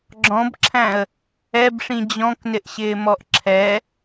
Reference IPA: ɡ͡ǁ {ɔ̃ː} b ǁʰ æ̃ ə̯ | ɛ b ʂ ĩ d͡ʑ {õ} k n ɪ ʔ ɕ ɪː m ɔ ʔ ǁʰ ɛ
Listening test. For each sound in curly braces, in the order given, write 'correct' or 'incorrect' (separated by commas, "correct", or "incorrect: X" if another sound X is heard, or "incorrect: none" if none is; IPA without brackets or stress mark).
incorrect: ɔ̃, incorrect: ɔ̃